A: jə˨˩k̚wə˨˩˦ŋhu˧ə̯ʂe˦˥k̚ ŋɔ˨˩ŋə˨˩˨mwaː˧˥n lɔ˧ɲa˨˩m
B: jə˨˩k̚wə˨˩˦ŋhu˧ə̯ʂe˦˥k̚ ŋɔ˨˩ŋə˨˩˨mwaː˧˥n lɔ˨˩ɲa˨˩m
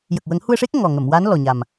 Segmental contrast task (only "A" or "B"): B